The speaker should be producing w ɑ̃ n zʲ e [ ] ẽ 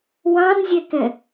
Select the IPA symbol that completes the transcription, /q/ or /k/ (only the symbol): k